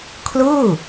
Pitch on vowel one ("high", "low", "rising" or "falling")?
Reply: falling